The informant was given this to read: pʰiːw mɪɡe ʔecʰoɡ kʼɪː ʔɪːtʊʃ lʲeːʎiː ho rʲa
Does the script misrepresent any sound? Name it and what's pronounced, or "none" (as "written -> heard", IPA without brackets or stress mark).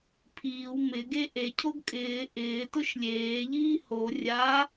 none